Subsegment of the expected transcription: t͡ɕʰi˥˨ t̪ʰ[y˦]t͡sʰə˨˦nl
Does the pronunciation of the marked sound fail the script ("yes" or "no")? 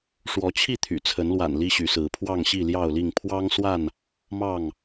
yes